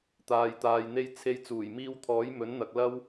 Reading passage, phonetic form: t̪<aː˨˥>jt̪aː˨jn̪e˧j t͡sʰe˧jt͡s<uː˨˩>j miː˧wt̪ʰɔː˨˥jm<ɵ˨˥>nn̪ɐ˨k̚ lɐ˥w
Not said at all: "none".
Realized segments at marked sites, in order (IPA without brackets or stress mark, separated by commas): aː˨, uː˨˩, ɵ˨˥